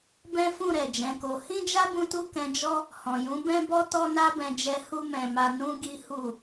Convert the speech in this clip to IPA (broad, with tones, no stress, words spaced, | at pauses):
bɛ̃˦fũ˦˨ɾɛ˨ d͡ʒɛ̃˨˦ko˧ hĩ˦d͡ʒa˦ bũ˦tu˦ kɛ̃˧d͡ʒɔ˦ | hɔ̃˨jũ˨˦ bɛ̃˦bɔ˦ tɔ˦na˦bɛ̃˧d͡ʒɛ˧ hu˦mɛ̃˧ma˧ nũ˧ ɡi˦hu˦˨